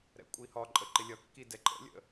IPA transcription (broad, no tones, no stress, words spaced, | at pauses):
ɾɛ̰kʷʼihɒǃʼə ǃɪlʲʌkːi dɛǃʼə̰lʲə̰